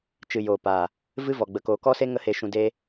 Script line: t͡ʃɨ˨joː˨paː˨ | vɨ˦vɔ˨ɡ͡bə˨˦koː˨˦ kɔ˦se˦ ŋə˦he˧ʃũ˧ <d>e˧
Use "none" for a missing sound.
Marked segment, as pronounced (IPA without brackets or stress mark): d